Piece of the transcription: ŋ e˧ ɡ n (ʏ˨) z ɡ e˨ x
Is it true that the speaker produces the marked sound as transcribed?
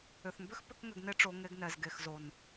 no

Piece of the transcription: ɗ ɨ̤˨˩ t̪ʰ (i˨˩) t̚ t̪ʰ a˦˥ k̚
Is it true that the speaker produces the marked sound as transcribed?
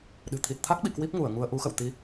yes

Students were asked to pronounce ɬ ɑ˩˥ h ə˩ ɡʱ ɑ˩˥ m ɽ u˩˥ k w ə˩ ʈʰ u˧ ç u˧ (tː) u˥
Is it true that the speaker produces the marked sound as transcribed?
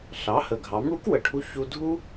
no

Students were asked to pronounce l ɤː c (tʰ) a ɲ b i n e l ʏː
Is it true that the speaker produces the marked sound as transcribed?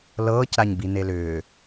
no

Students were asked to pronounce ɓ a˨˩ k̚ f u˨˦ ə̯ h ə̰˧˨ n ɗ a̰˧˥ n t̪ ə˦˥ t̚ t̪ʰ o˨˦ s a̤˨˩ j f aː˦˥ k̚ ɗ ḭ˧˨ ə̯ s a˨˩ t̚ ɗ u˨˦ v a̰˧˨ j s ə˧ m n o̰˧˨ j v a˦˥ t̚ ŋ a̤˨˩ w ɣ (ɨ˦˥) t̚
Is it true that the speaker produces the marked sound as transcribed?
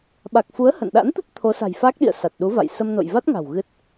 yes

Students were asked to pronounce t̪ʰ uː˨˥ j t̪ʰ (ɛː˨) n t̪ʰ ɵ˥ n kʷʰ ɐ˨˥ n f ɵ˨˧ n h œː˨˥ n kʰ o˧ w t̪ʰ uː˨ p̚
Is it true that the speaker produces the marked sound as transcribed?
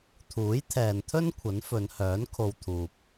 yes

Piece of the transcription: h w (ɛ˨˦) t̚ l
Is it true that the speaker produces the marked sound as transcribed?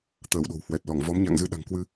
no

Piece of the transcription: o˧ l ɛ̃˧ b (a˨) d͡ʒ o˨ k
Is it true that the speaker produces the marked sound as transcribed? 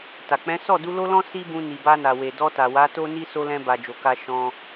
yes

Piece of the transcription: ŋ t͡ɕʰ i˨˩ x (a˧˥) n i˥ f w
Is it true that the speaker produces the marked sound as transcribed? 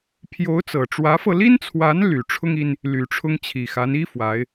yes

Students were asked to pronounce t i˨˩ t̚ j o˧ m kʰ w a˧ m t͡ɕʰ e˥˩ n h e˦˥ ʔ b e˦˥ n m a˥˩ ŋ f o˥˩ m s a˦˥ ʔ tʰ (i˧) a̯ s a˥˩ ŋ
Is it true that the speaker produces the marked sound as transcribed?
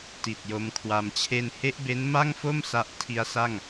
no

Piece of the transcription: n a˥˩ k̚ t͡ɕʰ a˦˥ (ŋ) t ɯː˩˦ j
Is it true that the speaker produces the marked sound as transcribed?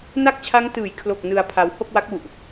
yes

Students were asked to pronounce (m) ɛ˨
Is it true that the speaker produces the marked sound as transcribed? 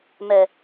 yes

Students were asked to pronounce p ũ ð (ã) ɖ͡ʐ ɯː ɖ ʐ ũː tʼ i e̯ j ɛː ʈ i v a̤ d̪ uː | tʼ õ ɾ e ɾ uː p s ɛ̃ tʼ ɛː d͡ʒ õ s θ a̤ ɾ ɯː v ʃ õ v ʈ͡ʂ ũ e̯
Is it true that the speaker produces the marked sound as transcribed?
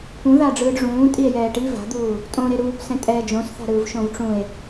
no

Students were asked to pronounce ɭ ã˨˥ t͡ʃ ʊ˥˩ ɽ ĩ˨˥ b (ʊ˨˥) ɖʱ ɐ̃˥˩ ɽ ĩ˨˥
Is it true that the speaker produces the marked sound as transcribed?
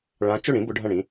yes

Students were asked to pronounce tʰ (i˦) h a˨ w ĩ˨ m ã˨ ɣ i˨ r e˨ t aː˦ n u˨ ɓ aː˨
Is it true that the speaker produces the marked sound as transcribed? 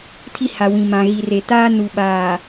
yes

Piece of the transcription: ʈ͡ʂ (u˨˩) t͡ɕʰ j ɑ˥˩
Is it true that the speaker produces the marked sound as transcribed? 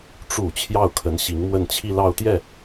yes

